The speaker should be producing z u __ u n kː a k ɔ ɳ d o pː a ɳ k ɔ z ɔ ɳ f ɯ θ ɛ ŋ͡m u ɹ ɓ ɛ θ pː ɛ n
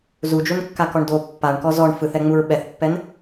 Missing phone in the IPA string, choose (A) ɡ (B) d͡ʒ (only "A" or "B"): B